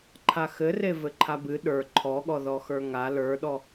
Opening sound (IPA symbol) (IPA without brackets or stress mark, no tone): ǃʰ